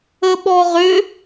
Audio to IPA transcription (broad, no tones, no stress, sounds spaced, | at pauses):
ə ɓ ɔ ʁ ʏ